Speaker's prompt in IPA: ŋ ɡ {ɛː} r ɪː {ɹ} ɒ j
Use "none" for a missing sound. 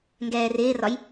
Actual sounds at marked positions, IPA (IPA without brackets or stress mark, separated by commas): ɛː, r